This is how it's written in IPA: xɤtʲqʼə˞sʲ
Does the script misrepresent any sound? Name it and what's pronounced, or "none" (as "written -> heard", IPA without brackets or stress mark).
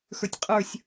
ɤ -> ə˞